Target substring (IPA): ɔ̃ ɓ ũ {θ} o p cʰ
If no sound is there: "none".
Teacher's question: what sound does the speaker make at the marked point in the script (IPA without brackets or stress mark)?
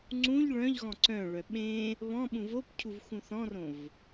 v